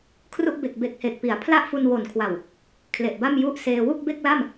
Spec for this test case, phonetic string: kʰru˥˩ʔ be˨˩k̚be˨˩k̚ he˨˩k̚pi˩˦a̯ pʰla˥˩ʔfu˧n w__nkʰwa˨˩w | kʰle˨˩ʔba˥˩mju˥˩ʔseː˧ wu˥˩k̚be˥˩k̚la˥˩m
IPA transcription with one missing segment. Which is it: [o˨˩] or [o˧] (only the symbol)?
o˨˩